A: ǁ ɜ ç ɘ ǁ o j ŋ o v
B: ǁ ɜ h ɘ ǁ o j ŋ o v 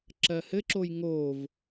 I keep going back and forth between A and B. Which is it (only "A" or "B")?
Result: B